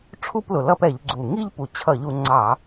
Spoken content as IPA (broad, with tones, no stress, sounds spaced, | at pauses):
ʈ͡ʂʰ u˥˧ p l ʊ˨˩ l ʌ˥˧ p ɛ˧˩˧ ʎ ɡ͡ǀ u˨˩ ŋ i˥˧ ʎ p u˨˩ t͡ɕʰ ʌ˧˩˧ ʎ u˩˧ ŋ͡ǀ ɑ˧˩˧